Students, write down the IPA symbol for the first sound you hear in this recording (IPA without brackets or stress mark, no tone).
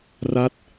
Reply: r